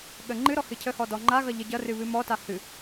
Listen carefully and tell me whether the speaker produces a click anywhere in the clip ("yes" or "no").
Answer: yes